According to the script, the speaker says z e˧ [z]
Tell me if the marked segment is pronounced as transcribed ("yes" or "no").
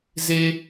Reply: no